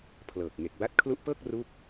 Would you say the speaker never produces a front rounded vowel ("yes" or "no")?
yes